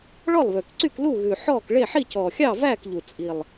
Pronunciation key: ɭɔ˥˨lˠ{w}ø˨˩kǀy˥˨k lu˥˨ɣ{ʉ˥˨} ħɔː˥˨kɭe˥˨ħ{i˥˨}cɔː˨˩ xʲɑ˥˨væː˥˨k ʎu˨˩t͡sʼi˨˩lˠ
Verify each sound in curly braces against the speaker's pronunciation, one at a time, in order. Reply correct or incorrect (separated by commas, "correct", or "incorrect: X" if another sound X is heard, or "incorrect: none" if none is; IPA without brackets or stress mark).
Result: incorrect: β, incorrect: ʉ˨˩, correct